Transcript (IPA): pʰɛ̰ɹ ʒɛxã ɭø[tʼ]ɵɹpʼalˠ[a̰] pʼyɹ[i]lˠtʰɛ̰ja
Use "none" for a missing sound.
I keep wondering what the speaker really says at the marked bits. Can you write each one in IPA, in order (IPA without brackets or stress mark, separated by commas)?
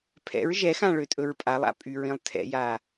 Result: tʼ, a̰, ĩ